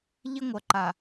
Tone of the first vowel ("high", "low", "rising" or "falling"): high